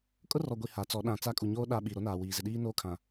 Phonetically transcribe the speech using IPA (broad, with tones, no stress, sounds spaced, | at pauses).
kʼ ʊ˦ r ɔ˨ ɡʷ i˨ h a˨˦ t͡s ɔ˨˦ ɗ ã˨ t͡s a˦ kʼ u˨ ɲ oː˦ ɗ a˦ ɓ i˨ ɾ o˦ n aː˨ w iː˨ z ɪ˨ ɗ iː˦ n oː˦ kʰ ã˨